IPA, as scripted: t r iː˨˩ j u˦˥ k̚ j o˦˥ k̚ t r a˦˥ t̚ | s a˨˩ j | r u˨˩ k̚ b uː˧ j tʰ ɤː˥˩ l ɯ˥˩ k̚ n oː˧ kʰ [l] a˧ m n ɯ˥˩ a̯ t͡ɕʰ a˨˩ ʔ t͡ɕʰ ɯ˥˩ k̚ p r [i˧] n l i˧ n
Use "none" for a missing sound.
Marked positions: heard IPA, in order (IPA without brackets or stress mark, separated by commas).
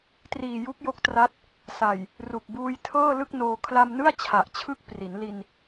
l, i˩˦